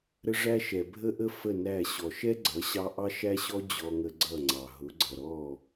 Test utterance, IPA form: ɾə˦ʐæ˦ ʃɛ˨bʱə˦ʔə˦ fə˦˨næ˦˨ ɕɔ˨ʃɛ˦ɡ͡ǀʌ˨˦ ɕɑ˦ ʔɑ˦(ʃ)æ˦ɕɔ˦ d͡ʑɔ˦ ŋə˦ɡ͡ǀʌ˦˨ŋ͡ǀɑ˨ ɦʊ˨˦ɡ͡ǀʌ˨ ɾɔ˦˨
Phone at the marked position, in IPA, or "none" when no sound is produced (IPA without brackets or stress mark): ʃ